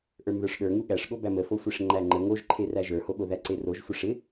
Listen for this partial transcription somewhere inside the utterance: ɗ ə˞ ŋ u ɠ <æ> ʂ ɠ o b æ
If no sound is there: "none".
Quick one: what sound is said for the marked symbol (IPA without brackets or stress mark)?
æ